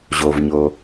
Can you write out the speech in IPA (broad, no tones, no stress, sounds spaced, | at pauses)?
ʑ o v ɲ o